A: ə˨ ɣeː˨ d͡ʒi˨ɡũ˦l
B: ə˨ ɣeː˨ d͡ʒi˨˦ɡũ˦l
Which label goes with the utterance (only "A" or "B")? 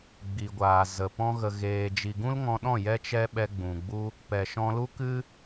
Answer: A